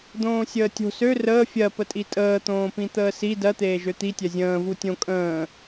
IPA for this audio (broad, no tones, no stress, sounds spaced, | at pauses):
d̪ õː sʲ əː tʲ o̤ s ø r əː fʲ ɜ p ə tʼ i tʼ əː t̪ õː p ĩ t̪ əː s i d ɜ t̪ eː ʒ ø t̪ i tʲ ɜ zʲ ə̃ː v u tʲ õ kʼ ə̃ː